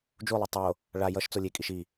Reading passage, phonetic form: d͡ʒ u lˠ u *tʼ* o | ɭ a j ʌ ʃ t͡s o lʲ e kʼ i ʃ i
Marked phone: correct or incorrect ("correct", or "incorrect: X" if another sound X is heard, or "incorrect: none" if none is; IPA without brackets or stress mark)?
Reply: incorrect: tˤ